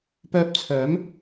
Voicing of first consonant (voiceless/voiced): voiceless